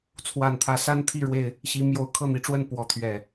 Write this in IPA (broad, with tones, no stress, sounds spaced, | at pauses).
t͡sʰ w a˨˩ n t̪ʰ ä˨˦ s a˦ n t̪ʰ i˥˨ ɻ w e˥˨ ɪ̯ | ɕ i˨˦ m j o˨˦ ʊ̯ kʰ ɤ˥˨ n̪ i˨˦ ʈ͡ʂ w ə˥˨ n p w ɔ˨˦ t̪ʰ ɥ ɛ˨˩